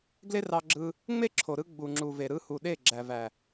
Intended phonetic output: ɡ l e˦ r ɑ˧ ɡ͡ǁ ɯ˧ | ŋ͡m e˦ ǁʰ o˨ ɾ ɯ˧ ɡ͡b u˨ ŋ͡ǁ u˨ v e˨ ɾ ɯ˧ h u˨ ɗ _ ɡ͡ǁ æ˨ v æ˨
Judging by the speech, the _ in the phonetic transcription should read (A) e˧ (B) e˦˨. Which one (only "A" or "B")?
B